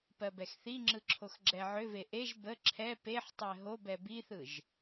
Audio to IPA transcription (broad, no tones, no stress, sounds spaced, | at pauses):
p ɜ b ɛ x θ i ŋ͡ǁ ɯ ǁʰ o x ɡ͡ǁ ɛ ʕ ʏ v e ʔ e ʒ b ə ǁʰ ɛ p e ħ tˤ ɛ ɦ o b ɛ b i θ ɯ ʒ